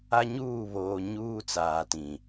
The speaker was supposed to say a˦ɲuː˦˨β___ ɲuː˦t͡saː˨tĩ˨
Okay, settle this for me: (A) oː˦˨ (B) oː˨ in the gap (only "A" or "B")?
B